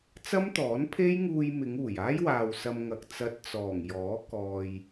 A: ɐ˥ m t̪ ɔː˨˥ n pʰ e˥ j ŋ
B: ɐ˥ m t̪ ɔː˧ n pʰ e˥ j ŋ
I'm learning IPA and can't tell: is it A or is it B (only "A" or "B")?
A